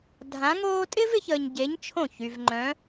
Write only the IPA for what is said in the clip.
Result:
dʱ ã˧˥ ŋ oː˥ tʼ ɪ˥ v ɪ˩˧ ç əː˧ ɲ ɟ e˧˥ ɲ t͡ʃʰ õ˥˩ ç y˧ v ŋ͡ǃ œ̃˧˥

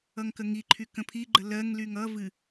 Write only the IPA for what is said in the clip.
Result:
ʌ ŋ k ə ŋ i ǃʰ y k ə̃ pʰ i ɡ͡ǃ ə l ɜ ŋ l y ŋ ʌ v ɨ

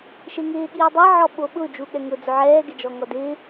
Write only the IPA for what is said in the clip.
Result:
ʃ e ŋ ɪː ɠ iː dˤ ɛ ʕ ɔ ɓ o ɓ ʊ d͡ʒ u ɠ ɛ ŋ ʊ d͡z ʊ ʕ ɛː ɡ ɪ d͡ʒ ɔ ŋ ɔ d ɪː

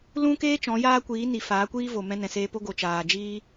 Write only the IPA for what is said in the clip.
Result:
l ũ˦ k eː˦ t͡ʃ ɔ̃˨˦ j aː˦ kʷ iː˨˦ n i˨ f aː˨˦ kʷ iː˦ v o˨ m ɛ̃˧ n ɛ̃˨ s eː˧ p o˦ ɡ o˨ t͡ʃ aː˨ d͡ʒ iː˦

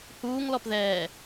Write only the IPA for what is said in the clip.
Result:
h uː ŋ l ɔ p ð ɛː

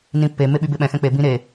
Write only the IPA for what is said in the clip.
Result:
n ĩ pː e m e ɓ y b e ɓ ɛ̃ x ɛ̃ k͡p e b ĩ ɾ e

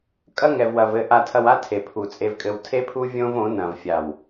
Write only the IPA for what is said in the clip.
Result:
kʼ ɐ˦ ŋ ɛ˨ v w ɐ˨ v ɘ˨ ʔ a˨ tʰ ɐ˨ w a˦ tʰ e˨ pʰ u˨ t͡sʼ e˨ v kʼ ɘ˨ w tʰ e˦ pʰ u˦ vʲ õ˦ v õ˨˦ n ɐ̃˨ v fʲ a˨ w

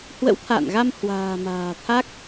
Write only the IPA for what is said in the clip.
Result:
h w ə̰˧˥ w t̪ʰ a̰ː˧˨ n ɣ a˧ m h w a̤ː˨˩ m a̤ː˨˩ t̪ʰ a˦˥ k̚

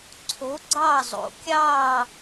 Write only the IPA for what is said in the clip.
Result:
ǀʰ o˧˥ ɡ͡ǀ ɑ˥˧ zˤ o̰˧˥ kʲ ɑː˥˧

